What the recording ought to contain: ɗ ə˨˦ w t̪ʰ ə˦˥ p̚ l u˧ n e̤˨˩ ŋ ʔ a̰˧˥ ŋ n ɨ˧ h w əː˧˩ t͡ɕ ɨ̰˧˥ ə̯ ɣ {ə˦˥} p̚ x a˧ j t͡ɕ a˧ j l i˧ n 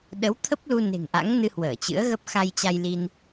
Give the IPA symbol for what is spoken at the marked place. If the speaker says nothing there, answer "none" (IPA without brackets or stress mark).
ə˦˥